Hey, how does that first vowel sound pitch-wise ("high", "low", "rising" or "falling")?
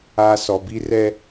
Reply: high